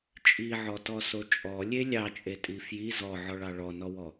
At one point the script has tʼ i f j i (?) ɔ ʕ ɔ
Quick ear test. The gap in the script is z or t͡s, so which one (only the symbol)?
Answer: z